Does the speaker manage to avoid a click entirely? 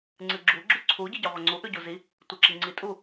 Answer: no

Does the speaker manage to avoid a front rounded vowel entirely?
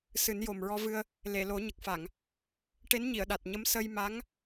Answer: yes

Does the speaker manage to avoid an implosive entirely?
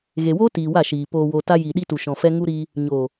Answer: no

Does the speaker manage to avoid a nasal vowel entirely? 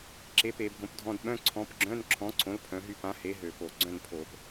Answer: no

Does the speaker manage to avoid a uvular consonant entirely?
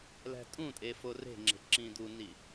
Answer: yes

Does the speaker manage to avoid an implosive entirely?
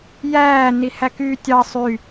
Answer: yes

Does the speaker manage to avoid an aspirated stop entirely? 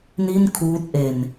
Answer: no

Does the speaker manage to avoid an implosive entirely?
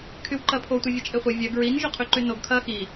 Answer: yes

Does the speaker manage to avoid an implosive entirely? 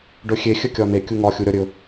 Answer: yes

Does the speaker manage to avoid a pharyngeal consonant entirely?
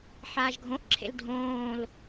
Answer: no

